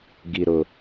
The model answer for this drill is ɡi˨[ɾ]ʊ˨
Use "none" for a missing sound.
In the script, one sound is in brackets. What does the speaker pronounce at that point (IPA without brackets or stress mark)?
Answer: ɾ